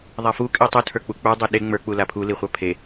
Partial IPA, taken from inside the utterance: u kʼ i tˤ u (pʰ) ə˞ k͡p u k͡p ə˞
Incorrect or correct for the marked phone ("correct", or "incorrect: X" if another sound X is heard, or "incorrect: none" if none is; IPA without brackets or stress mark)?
incorrect: tʰ